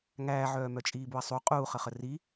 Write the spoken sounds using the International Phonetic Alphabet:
ŋ æː ʕ œː m œ t͡ʃʼ iː b u ɐ̯ sˤ u qʼ uː χ ə χ ə r i

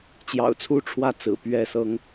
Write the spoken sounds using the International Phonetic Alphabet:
t͡ɕ j ɑ̰˨˩ ʊ̯ t͡sʰ u˥˨ ʈ͡ʂʰ w ä˥˨ t͡s ɹ̩˨˩ p ɥ ɛ˥˨ s ɤ˦ ŋ

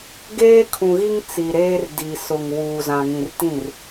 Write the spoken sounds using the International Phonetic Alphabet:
ɡ eː˦ kʰ ũ˨ ɣ i˦ ŋ t͡s i˨ ɾ eː˦ r d i˨ s ʊ˨ ŋ w uː˨ z ã˨ ŋ ĩ˨ r t ĩ˦˨ r

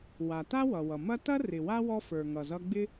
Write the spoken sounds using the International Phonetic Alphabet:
w a˩ t a˥ w ʌ˩ w ʌ˩ m ɐ˦ t ɐ˥ r ɪ˨ w a˥ w ɔ˦ f ə˞˨ ŋ ʌ˨ z ʌ˦ ɡ͡b ɪ˥

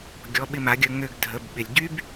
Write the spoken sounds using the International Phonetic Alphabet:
ɡʲ ɔ˩˧˩ ɓ ɪ˧˩ m a˩˧ ɡʲ ə˩˧˩ ŋ ø˧˩ ɡ dʱ ə˩˧˩ b ɓ ɪ˩ lʲ ɟ y˦ b

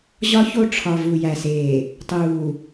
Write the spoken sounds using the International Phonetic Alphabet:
ʑ ɒ˦ ç o˦˨ ʈ͡ʂʰ ɒ˨ v u˨ j æ˨ s eː˨ | tˤ uː˨

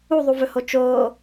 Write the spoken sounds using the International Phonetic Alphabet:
u ðˤ u v ɵ h o t͡ʃ oː

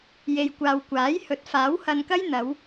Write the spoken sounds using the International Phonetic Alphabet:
j e˨ j kʷ aː˨ w kʷ aː˨˥ j h ɵ˨˥ t̚ f aː˨˥ w h ɐ˧ n k ɐ˥ j n̪ ɐ˨˧ w

